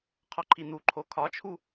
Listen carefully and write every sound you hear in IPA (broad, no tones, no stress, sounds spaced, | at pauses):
qʰ ɒ ǃʰ i n̪ u ǃʰ o kʰ ɒ t͡ʃʰ u